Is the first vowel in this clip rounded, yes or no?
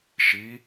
no